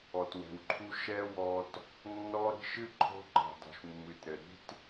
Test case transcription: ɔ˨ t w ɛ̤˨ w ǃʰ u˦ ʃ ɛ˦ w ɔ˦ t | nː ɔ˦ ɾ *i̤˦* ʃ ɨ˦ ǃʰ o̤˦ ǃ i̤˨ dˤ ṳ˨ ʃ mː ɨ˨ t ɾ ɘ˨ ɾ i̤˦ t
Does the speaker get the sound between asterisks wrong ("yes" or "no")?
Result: no